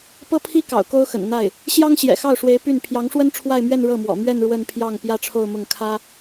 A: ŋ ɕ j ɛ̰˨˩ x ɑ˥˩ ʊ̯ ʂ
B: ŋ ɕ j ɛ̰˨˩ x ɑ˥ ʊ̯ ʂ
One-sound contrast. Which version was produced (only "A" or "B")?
A